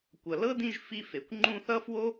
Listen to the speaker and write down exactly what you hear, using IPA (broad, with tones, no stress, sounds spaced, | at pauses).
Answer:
kʷ ʌ˨ l ɤ˥ d ĩ˦ ʒ f i˥ f e˨ kʷ ŋ͡ǃ ũ˦ θ ʌ˥ f w o˥